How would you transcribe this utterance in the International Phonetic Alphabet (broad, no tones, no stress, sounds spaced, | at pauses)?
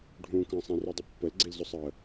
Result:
ɖʱ ũ k ɐ̃ sˤ ẽ r ʊ dˤ ʊ pː ə l ɡ͡ǀ i l z ʊ sˤ əː